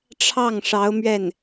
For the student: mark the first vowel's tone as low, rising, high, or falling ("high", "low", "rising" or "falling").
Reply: falling